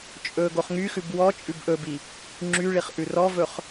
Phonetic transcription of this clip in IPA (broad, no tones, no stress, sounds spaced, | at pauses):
t͡ʃʼ ɵ ɡ o χ ŋ y x ʉ b w ɔ t͡ʃʼ ʉ b ʔ ɵ b i | ŋ͡ǁ y ɭ i χ ʔ ʉ r ɔ v ɵ χ